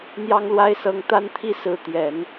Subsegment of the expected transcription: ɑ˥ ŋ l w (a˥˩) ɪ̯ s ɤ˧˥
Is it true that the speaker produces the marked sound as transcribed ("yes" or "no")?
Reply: no